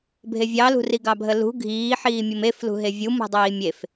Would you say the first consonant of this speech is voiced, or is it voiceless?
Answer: voiced